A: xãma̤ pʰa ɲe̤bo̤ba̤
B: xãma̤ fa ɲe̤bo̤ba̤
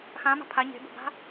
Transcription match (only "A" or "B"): A